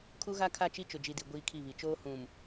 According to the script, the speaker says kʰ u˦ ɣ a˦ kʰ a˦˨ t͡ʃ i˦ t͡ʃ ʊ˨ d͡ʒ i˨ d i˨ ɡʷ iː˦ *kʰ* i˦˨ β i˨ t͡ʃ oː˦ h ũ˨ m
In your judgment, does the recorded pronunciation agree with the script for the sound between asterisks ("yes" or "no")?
yes